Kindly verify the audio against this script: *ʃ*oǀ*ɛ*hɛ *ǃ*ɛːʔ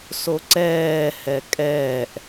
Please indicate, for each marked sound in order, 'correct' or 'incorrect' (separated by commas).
incorrect, incorrect, incorrect